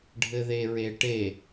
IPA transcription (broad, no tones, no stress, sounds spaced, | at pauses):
ɖʱ ɘ ð e ɹ e ʈ e